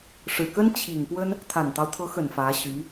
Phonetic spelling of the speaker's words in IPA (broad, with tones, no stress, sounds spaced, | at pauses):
ʂ ɻ̩˨˩ k ə˥ n t͡ɕʰ i˨˩ ŋ p w ə˥ n | t̪ʰ a˨˩ n t̪ ɑ˦ ʊ̯ t̪ʰ ɤ˧˥ x ə˨˩ n f ä˧˥ ɕ y˧˥